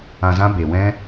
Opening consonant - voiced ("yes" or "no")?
yes